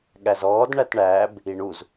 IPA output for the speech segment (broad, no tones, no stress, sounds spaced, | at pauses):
ɠ æ z ɔː d ɳ æ t ɳ æ b | i ɳ u z